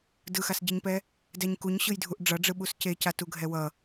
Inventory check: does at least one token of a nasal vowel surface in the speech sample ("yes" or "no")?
no